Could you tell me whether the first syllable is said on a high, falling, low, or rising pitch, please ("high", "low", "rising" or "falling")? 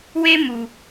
high